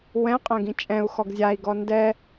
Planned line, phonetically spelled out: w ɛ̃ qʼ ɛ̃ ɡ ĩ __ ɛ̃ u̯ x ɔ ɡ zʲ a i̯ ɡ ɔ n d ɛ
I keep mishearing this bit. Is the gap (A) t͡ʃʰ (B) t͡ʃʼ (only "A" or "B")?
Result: B